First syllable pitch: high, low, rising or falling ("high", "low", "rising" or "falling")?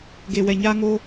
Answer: low